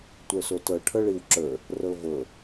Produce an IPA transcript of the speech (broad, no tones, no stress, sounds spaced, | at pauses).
tʷ ə˞ s o t ɤ ʈʰ ɤ ɭ i w ǁ ə˞ | r ɤ v ɤ